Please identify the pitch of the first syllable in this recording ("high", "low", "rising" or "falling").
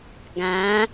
rising